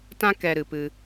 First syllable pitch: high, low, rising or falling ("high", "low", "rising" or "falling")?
high